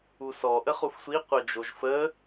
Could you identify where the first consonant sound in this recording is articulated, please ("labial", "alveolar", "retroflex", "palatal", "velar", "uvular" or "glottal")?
alveolar